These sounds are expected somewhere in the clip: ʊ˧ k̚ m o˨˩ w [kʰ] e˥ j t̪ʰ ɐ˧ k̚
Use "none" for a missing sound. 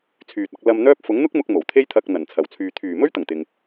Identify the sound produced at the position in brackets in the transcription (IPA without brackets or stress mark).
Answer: t̪ʰ